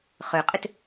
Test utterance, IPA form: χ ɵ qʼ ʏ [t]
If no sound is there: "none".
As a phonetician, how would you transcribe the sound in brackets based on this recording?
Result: t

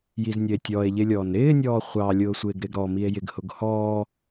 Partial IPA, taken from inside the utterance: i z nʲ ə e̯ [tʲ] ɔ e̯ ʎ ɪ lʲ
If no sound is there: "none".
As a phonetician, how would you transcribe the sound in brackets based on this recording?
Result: tʲ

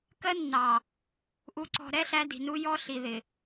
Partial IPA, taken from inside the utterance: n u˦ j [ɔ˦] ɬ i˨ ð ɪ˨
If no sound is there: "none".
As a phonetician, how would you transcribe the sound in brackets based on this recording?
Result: ɔ˦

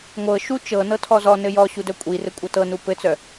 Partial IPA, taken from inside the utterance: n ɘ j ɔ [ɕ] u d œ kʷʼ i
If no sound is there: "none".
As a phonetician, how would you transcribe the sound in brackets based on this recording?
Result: ɕ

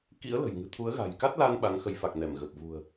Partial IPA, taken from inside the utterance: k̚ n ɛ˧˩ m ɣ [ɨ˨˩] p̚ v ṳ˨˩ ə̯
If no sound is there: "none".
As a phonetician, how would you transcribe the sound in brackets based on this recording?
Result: ə˨˩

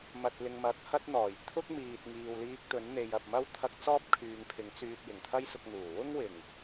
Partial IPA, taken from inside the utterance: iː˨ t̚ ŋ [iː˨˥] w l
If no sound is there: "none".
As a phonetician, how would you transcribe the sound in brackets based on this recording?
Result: iː˨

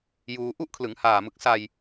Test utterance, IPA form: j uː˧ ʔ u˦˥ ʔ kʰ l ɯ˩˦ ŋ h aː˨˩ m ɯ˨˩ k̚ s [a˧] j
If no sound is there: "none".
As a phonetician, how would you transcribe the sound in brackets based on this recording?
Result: a˧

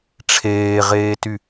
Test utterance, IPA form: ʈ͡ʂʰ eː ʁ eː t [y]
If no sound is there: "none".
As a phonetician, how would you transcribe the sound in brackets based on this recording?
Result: y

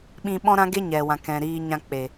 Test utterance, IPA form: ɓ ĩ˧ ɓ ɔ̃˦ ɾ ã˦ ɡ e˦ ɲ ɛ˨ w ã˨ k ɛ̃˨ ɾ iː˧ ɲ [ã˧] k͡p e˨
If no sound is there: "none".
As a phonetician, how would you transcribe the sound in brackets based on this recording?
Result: ã˧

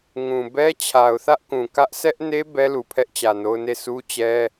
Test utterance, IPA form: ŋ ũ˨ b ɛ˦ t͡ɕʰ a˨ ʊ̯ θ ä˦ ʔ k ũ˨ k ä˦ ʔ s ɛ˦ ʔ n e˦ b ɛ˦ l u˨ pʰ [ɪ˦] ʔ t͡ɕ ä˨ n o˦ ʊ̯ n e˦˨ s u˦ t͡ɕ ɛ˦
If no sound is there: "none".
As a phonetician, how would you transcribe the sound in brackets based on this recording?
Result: ɛ˦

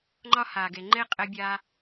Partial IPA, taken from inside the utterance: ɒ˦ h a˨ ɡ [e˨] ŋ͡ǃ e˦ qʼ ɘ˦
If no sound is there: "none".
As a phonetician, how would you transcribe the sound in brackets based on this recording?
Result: e˨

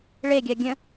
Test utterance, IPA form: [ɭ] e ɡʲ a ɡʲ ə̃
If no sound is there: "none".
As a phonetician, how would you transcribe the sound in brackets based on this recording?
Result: ɭ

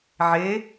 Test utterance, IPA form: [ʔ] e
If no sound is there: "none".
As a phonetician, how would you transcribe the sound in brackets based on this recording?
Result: ʕ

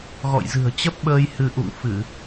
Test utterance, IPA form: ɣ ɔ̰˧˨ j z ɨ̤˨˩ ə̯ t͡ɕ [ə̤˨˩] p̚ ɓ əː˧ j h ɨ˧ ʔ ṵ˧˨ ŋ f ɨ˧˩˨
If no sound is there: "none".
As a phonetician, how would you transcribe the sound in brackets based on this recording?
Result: ə˦˥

